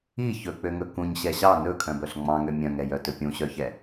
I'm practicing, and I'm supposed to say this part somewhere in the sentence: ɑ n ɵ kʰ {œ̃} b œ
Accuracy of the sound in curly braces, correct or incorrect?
correct